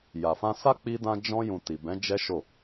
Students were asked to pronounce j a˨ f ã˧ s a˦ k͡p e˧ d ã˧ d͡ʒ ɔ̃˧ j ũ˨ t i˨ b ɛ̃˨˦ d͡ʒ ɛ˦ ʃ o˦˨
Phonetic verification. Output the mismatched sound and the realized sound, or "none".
e˧ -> i˧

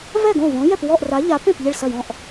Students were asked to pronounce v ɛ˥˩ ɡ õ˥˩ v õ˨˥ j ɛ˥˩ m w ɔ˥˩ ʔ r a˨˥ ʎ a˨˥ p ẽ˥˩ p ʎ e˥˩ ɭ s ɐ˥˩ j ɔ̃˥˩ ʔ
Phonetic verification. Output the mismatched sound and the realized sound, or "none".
m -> p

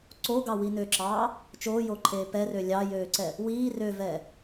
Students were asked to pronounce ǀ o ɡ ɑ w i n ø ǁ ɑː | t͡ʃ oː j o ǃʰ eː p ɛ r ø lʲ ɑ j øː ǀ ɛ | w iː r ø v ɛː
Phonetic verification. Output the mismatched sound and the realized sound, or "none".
none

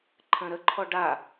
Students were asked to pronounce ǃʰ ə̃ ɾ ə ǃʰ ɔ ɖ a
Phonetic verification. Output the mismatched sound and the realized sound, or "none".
none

